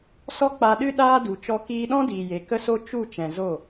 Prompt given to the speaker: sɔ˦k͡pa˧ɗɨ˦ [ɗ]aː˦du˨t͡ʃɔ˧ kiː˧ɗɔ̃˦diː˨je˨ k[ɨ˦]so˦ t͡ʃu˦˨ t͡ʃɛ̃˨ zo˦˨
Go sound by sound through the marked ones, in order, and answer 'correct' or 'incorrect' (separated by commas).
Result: correct, incorrect